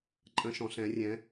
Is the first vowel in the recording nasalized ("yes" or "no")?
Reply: yes